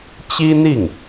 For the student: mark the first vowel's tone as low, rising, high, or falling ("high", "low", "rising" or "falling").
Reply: high